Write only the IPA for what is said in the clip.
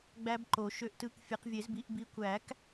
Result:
ɡ͡bæ˦˥bǃo˨˩˦ ʃø˨˦ʔtɯ˨˦k fʲe˨˦qvʲe˨˩˦zbi˨˦ʔ bi˨˦kʷæ˨˩˦k

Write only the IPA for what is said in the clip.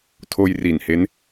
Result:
tʰoː˧jriː˨˩nhe˦˥n

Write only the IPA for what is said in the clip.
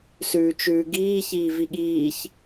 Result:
sʉːt͡ʃʉːɡiː çiːviɠiːç

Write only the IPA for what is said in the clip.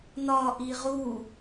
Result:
nɒʔi ʁu

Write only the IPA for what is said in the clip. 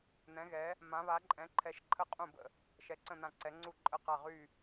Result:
n̪ɛ̃˩˧ɣɛ˩˧ | mã˩˧βa˩˧ǃʼɛ̃˩˧ ǃʰɛ˩˧ʃǃʰə˧˩ qʼũ˧˩bə̰˧˩ | ʃɛ˩˧ǀə̃˧˩n̪ã˧˩ ǀɛ˩˧ ŋ͡ǀu˧˩ǃʼə˧˩qa˧˩ ʁy˧˩

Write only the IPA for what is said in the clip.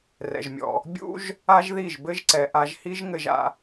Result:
rɛ̰˩ʒmʲɔ̰˩ | bʲṵ˥ʒ | a˥ʒði˥˩ʒbɘ˥ʒǀɛ˩ ʔa˧ʒhi˥ʒŋɘ˧ʒa̰˧

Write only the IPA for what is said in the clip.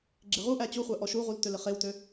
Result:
ɡ͡ǁɪʁuʔæ t͡ɕuχʷæ ʔɔʃuʁul tølɪχewtø

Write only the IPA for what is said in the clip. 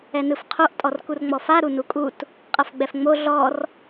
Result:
ɛnɯfqʰoʔ tʼɔrkurŋ͡mɔfa ɾunukʼut | qʼɤfɡ͡bɛfŋ͡mo ɮɔr

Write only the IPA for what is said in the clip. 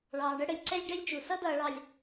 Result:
ɭɑː˨ɳə˦ ɽə˨lʲǀɛ˦lʲ ɖɛ˦lʲt͡ʃu˨ sʌ˦dʌː˨ɭɑ˨lʲ

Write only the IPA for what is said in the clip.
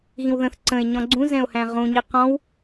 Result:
ɣĩwðə̃θ ǀə̃e̯ ɲɔ̃ɡ͡ǀũ zɛ̃o̯hæ̃ʁũ ɲiqɔ̃w

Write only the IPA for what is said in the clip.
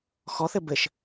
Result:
xɔθɘ bɘʃ

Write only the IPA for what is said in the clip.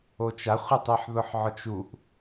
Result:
ot͡ʃa χʷɪtˤiħ ðʊħʕɔt͡ʃuʔ

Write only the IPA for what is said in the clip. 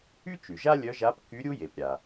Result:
y˥t͡ʃy˩ʒa˥ lʲœ˧˥ʒa˧˥p ky˧˥ɾʲu˥je˩pɾʲa˩

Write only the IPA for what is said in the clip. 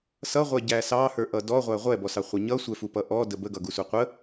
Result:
sʌʁʷɛɟæ sɑhə˞ʔʌ dɔʁʷæ ʁʷɛbɔsɑχʷə ɲʌsʷɛfupʌ ʔɔdə bəɡʌɡusu qʷə

